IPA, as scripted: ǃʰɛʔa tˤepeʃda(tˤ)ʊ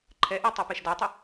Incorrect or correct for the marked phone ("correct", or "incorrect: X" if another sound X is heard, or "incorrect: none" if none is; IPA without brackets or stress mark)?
correct